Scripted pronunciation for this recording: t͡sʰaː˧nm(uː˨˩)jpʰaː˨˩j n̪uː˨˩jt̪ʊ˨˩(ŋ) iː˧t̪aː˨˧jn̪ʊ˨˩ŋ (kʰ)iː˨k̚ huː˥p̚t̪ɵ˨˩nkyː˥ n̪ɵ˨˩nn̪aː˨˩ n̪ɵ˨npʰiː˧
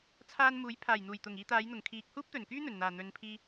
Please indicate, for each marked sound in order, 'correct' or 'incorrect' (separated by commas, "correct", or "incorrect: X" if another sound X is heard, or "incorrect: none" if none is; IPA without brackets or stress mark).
incorrect: uː˨˥, correct, correct